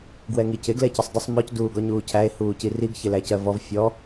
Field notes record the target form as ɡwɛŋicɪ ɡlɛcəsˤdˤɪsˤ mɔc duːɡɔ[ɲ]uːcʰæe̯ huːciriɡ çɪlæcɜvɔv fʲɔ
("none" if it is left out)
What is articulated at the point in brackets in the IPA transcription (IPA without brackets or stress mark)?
ɲ